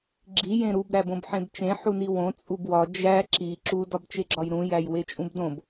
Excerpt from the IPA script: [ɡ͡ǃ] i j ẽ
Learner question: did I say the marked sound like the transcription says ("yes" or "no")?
no